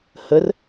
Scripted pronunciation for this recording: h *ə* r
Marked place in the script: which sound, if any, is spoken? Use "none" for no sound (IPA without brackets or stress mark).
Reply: ə